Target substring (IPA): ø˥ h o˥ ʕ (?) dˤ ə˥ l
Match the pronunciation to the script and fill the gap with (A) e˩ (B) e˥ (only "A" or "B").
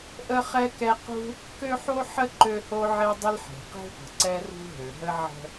B